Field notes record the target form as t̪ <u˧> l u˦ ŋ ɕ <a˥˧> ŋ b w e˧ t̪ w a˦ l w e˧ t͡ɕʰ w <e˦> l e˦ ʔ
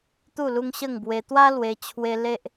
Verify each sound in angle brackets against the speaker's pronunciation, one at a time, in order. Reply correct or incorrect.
incorrect: u˥˧, incorrect: ə˥˧, correct

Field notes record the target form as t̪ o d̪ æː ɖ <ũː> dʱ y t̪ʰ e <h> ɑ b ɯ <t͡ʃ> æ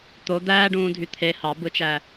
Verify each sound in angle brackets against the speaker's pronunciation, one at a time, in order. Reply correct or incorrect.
correct, correct, correct

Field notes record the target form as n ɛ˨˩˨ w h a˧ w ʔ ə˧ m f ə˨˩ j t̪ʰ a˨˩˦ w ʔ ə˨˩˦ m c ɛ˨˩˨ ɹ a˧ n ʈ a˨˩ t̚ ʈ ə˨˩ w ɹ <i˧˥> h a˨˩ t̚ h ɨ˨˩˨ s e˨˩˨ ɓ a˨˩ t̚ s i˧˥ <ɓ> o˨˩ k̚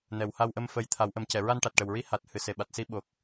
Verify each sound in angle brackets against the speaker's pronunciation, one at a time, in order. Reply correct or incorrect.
correct, correct

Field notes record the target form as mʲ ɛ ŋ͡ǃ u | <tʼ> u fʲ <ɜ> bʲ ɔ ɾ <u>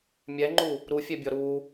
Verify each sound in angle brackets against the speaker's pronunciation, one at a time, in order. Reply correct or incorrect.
incorrect: ɾ, incorrect: ɛ, correct

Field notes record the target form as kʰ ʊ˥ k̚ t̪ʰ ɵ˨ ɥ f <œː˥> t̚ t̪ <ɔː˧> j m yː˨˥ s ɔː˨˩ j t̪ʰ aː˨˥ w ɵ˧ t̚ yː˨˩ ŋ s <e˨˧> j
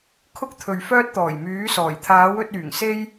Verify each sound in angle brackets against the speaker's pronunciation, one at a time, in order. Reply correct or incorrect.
correct, incorrect: ɔː˨˩, incorrect: e˥

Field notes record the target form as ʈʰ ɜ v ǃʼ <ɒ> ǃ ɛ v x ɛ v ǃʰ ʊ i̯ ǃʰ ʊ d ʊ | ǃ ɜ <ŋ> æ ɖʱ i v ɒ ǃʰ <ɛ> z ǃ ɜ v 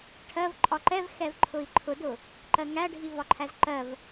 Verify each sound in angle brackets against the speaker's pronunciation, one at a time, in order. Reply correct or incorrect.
correct, correct, incorrect: æ

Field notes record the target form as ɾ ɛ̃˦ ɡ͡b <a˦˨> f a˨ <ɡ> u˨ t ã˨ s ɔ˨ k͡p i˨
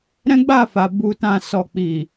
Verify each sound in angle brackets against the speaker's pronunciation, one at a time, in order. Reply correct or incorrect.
correct, incorrect: b

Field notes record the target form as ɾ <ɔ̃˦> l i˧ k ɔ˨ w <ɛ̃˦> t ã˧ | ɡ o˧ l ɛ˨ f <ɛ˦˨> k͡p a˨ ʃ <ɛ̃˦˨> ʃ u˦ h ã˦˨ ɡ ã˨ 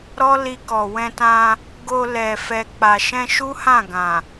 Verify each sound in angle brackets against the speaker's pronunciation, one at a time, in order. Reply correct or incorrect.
incorrect: ɔ˦, incorrect: ɛ̃˧, incorrect: ɛ˨, incorrect: ɛ̃˧

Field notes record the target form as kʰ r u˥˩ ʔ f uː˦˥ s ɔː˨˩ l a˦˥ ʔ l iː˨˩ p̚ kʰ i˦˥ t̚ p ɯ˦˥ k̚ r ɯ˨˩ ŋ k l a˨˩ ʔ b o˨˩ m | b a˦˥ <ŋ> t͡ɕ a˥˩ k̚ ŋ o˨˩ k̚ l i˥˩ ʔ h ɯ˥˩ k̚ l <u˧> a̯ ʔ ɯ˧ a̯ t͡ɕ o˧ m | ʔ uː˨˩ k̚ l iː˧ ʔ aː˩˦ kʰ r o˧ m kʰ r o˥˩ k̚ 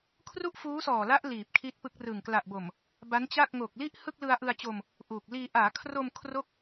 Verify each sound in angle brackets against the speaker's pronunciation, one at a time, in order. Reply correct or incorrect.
incorrect: n, incorrect: ɯ˧

